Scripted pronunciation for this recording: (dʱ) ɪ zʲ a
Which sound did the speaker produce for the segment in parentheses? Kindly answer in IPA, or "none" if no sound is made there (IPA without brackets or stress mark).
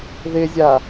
ð